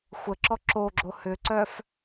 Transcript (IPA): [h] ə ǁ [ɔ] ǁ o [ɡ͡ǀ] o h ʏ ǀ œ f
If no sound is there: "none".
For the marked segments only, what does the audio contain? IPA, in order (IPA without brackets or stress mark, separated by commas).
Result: xʷ, ɔ, ɡ͡ǁ